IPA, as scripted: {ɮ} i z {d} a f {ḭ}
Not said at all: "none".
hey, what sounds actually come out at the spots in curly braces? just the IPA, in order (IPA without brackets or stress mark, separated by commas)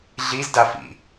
ɮ, d, ḭ